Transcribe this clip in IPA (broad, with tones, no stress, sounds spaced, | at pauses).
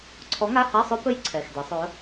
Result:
ǀʰ ɔ˨˥ ŋ a˧˥˧ h a˧˥˧ sˤ ɵ˦˥ p ɵ˦˥ j ǀʰ ɛ˩˧˩ x d ɛ˩˧ sˤ ɵ˩˧